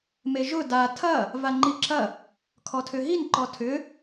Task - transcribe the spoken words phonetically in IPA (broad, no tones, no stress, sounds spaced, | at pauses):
m e ʒ ʊ d a tʰ ɐ | v a ŋ͡ǃ i ǁ ɐ | kʰ ɔ tʰ ʏ ɦ i n ǃ ɔ tʰ ʏ